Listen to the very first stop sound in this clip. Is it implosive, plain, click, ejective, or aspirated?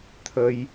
aspirated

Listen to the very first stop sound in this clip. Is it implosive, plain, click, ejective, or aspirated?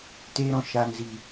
plain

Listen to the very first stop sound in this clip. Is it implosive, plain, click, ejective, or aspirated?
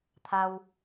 aspirated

